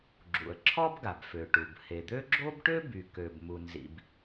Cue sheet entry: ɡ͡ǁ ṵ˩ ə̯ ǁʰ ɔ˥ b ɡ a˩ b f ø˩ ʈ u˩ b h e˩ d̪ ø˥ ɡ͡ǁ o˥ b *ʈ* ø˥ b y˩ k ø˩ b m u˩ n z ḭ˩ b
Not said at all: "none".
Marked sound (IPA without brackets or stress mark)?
ʈ